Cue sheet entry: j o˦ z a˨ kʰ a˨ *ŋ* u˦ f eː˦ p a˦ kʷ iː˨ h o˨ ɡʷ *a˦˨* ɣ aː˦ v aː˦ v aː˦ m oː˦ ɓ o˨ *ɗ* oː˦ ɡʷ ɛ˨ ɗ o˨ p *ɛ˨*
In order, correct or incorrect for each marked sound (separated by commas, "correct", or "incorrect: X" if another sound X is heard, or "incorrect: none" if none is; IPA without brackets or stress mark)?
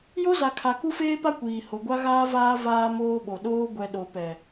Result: incorrect: k, incorrect: a˦, correct, correct